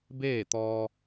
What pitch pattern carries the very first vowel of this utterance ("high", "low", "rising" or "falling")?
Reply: falling